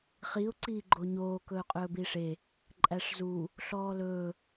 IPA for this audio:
χ i ʊ̯ ǀ iː ɡ͡ǃ o ɲ oː k ɵː qʼ ɵː b iː ʂ e | ǃʼ æ ʂ z u | ɬ ɔː l ɵː

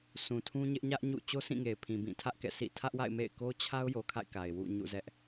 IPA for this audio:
s ũ˨ tʰ ũ˦ ɲ ɪ˦ ʔ ɲ ä˦ ʔ ɲ ṵ˦˨ t͡ɕ o˦ sʰ ĩ˦˨ ŋ e˨ ɪ̯ pʰ ĩ˨ b ĩ˦˨ tʰ ä˦ ʔ k ɛ̰˦˨ sʰ ḭ˦˨ tʰ ä˦ ʔ w a̰˦˨ ɪ̯ m ḛ˦˨ ɪ̯ k o˦ t͡ɕʰ a˦ ʊ̯ j o˨ kʰ a̰˦˨ ɪ̯ k a˨ ɪ̯ w ṵ˦˨ ɲ ṵ˦˨ z ɛ˦ ʔ

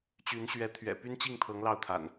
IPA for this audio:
t͡ɕ y˨˦ n ɕ ɥ ɛ˨˦ t̪ʰ ɥ ɛ̰˨˩ p y˦ n t͡ɕ i˥˨ ŋ t̪ʰ ɤ˨˦ ŋ l ɑ˥˨ ʊ̯ t̪ʰ a̰˨˩ n

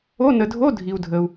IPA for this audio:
o˧˥˧ n ə˨ dʱ o˧˥˧ dʱ i˨ u̯ dʱ ə˨ u̯

